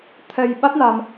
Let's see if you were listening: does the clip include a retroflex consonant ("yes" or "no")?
no